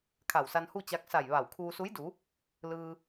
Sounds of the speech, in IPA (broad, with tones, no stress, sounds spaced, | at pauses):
kʰ a˧˩ w s a˧ n h u˥˨ t͡ɕ a˧˥ k̚ s a˧˩ j ʋ a˧˩ w kʰ uː˧ s u˧˥ j d u˩˧ | l ɯː˧